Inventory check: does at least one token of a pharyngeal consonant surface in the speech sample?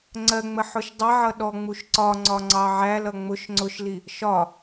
yes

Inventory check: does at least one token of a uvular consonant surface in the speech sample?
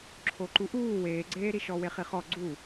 yes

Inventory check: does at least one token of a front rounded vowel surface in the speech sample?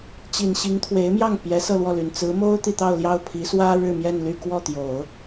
yes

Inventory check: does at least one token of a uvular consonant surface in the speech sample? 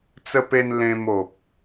no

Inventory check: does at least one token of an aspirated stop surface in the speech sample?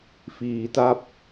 no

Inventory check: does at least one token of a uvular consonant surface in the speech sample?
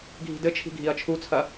no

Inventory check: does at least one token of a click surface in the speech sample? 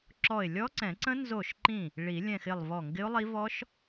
yes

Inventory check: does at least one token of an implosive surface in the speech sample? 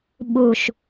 yes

